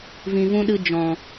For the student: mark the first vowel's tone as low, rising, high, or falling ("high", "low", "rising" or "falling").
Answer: low